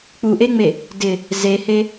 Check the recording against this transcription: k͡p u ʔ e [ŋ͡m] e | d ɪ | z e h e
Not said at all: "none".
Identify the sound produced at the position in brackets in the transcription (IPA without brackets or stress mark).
ŋ͡m